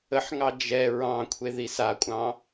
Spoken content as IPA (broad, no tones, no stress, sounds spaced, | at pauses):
ə ħ ŋ ɑ d͡ʒ ɛ ɹ ɑ̃ kʷʰ e ð i s a kʷʼ ɑ̃